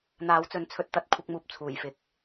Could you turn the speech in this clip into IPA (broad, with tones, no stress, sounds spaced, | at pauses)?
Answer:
n̪ aː˨˥ w t͡s ɵ˨˥ n t͡sʰ ɵ˧ t̚ t̪ ɐ˨˥ t̚ kʷʰ ɪ˨˥ k̚ m uː˨ p̚ t͡sʰ uː˨˩ j f ɪ˨ k̚